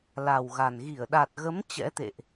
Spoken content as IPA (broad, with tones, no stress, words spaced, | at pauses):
la˨˩wɣa˨˩n ɣi˧˩ə̯ɗa˨˩t̚ɣə˨˦m t͡ɕɛ̰˧˥t̪ḛ˧˨ʔ